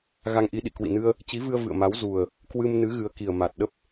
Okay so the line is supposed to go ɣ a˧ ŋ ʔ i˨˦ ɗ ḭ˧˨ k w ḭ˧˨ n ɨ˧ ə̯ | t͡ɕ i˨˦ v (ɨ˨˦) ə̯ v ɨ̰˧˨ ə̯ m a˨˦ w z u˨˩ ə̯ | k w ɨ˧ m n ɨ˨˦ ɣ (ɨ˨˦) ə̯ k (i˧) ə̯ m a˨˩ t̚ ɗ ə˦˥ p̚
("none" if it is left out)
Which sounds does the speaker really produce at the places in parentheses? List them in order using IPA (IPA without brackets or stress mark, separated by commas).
ɨ˧, ɨ˨˦, i˨˩